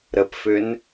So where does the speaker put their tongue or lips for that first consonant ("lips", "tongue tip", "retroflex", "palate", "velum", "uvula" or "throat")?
tongue tip